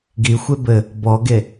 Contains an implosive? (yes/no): no